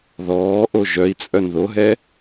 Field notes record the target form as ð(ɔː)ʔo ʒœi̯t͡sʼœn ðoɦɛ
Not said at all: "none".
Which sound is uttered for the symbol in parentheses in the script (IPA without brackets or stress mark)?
ɔː